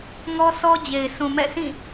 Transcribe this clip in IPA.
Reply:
ŋɔ˦sʰɔ˦ d͡ʑe˨ɪ̯ sũ˨mɛ̰˦˨sʰĩ˦˨

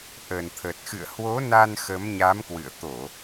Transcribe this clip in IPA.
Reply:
ʔə˨˩nt̪ʰə˨˩t̚ xɨ̰˧˨ə̯hwo˨˦na˧n xə˨˦mɲa˨˦mkwɨ̰˧˨ə̯ t̪o˧˩˨

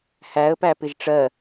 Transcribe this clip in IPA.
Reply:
hæə̯pæpɪʒ ʈ͡ʂɜ

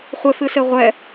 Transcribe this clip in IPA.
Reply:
χʷɘfɨ seʁʷɛ

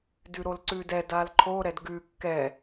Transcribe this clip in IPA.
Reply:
dʉɾolǀʉdɛ dalǃʰo ɾɛdɡʉ kːɛ

